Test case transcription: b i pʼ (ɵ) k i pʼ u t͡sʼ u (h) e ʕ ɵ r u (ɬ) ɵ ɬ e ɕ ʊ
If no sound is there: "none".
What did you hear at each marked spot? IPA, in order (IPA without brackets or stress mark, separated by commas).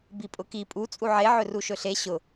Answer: ʊ, ʕ, ʃ